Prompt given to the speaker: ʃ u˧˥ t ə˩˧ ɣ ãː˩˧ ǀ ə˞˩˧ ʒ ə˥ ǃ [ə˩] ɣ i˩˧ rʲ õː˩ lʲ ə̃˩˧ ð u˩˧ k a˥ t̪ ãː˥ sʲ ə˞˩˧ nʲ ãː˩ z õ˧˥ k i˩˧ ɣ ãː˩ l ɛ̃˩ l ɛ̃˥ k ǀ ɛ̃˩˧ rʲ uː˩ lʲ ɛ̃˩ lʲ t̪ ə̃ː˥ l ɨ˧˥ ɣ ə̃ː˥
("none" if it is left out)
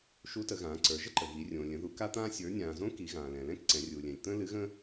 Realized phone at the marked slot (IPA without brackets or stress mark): ə˩